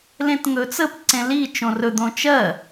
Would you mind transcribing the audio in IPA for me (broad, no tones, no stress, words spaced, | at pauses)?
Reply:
lẽtŋɵt͡səp ǀẽli t͡ʃõrɵ d̪õt͡ʃɜ